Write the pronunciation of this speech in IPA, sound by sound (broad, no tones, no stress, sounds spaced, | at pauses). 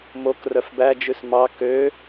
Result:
m o k r œ f b æ d͡ʒ ʉ s m ɑ k ø